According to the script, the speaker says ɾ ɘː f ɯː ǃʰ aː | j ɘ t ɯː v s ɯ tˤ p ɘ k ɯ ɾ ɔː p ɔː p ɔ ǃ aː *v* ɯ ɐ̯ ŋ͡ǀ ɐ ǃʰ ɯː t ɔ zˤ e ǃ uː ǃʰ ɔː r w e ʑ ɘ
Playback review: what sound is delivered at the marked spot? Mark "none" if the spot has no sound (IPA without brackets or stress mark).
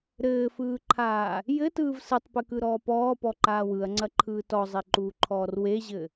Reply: w